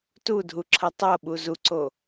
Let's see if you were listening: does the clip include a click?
yes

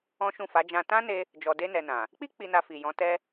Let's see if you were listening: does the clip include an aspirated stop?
no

